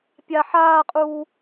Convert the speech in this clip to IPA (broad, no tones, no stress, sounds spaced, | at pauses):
pʲ a ħ aː qʼ uː